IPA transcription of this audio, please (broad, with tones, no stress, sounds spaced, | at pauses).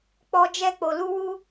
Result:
k͡p ɔ˧ d͡ʒ ɛ˧ k͡p o˨ l u˧ w u˦